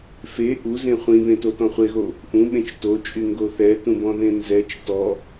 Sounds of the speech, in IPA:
fe ʔuzẽ χʷĩβẽtotɔ̃ χʷeɣo | ʔũɓẽt͡ʃ tot͡ʃʼyŋɡo θɛtũbɔ̃ðẽ nzɛt͡ʃ tɔ

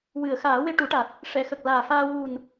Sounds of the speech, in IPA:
wɨ˨˩˨ə̯xaː˨˩˦we˧ ʈu˨˩˦ʈa˨˩t̚ | ʂɛ˨˩˨xə˨˩k̚laː˨˩faː˧ wu˨˩n

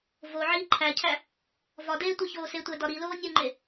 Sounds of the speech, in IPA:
vo ʕiːǃʰæcʰæ | vɒdeː tʷeçoːsetʷæ dɒɾiloː nʲuŋ͡ǃe

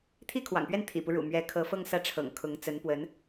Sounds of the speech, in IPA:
t̪ʰi˥˩kʰwɑ̰˨˩ŋpɥɛ˥˩n t̪ʰḭ˨˩pu˦ ɻṵ˨˩mɥɛ˧˥ kʰɤ˧˥fɤ˥˧ŋsä˥˩ʈ͡ʂʰɤ̰˨˩ŋ kʰʊ˧˥ŋt͡sə˧˥npwə˧˥n

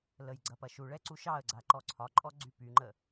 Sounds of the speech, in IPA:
ləj ɡ͡ǀɐpɐʃuɭɛ ǀuʃɑə̯ɡ͡ǀa ǃɔǀʰɒǃʼɔ ɡ͡ǀypyŋ͡ǃə

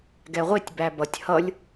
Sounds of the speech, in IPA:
ɡɛʁʷɪtʲ bæbʌtʲ hʌlʲ

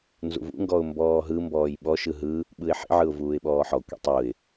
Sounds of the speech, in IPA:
nzṵvṵŋɡɔʊ̯ mbɔːɦɯmbɔːj ɓɔʃɯ ɦɯ | ɓɯɪ̯ħḭʕɯʊ̯ vuːɪ̯ɓɔːħɔkʷḭ tˤuɪ̯

